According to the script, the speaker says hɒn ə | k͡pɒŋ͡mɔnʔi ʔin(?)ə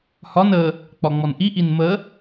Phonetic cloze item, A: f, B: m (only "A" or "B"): B